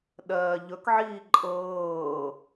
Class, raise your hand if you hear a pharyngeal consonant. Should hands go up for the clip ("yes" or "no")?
yes